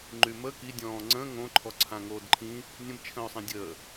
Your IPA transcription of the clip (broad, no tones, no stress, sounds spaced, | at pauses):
ŋ͡ǃ y m ə k i dʲ ɔ̃ː ŋ͡ǀ ə̃ː ŋ õ ǃʰ ɔ ǀʰ ã ŋ oː d ǃʰ ĩ | nʲ ə̃ b t͡ʃʰ ə̃ː ʊ̯ sˤ ĩ dʲ əː